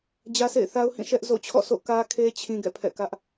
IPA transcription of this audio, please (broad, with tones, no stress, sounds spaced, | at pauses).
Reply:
d͡ʑ ä˦ sʰ ḛ˦˨ ɪ̯ θ a˦ ʊ̯ h ĩ˦˨ ʃ ɛ˦ ʔ z o̰˦˨ t͡ɕʰ ɔ̰˦˨ s o̰˦˨ k ä˦ kʰ e˦ t͡ɕʰ ĩ˦ ɡ ɛ̰˦˨ pʰ ɛ̰˦˨ k ä˦ ʔ